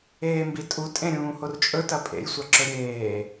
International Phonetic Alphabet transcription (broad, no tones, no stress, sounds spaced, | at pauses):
eː m b i tʼ u tʼ ẽ ɾʲ ũː h o r t͡ʃʼ ɵ t ɐ pʼ ḛ j sʷ ɐ ǁ ɵ ɾʲ eː